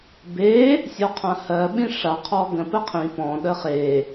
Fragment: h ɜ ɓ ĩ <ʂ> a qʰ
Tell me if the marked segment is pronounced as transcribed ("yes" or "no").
yes